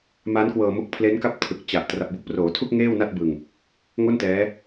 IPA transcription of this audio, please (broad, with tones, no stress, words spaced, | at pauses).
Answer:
ma˦˥nkwɤː˧mo˦˥k̚ pʰle˦˥nka˥˩p̚ tʰɯ˨˩k̚t͡ɕa˨˩ʔ tra˨˩p̚bu˦˥k̚ proː˩˦tʰu˥˩k̚ ŋeː˥˩wna˥˩t̚ bɯ˧ŋ | ŋo˥˩ntɛː˦˥